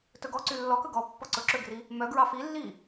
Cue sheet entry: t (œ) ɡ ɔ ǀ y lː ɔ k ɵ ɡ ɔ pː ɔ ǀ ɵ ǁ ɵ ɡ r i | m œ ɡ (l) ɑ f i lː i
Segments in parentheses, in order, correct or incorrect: incorrect, incorrect

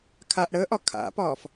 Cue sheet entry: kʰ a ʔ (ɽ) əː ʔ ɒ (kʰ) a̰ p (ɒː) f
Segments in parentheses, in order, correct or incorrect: correct, correct, correct

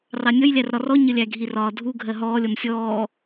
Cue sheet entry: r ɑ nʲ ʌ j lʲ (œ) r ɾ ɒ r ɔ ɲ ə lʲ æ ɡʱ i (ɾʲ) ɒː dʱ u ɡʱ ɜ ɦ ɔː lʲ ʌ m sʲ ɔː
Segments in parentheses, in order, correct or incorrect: incorrect, incorrect

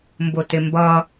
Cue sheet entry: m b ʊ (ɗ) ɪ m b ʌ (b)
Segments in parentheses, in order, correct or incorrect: incorrect, incorrect

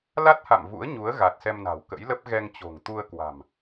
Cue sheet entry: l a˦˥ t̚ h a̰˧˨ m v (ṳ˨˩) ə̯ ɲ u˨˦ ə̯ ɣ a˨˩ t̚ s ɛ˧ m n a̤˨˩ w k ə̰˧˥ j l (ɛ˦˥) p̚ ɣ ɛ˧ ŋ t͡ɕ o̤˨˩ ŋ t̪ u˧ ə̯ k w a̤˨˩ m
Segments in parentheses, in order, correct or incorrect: incorrect, incorrect

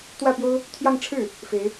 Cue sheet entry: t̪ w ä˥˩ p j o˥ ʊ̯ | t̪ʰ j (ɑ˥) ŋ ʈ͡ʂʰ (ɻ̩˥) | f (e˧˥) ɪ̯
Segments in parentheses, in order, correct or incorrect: incorrect, incorrect, correct

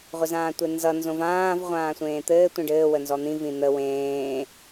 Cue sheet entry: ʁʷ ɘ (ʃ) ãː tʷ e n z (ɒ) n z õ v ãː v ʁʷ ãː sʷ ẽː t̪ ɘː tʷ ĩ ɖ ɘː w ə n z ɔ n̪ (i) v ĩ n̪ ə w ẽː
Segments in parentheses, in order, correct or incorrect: incorrect, incorrect, incorrect

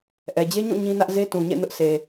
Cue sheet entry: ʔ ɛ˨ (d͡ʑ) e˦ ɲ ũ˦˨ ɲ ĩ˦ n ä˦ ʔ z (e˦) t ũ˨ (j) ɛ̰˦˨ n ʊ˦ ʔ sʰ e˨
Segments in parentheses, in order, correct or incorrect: correct, correct, incorrect

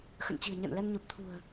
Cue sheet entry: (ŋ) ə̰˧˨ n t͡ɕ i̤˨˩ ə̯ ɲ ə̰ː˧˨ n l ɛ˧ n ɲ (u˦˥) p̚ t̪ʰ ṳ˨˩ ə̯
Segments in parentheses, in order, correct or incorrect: incorrect, incorrect

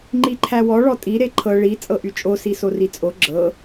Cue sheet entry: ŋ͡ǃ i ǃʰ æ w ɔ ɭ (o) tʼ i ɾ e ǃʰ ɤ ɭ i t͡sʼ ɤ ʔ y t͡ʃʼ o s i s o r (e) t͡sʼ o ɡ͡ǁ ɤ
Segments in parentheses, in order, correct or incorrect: incorrect, incorrect

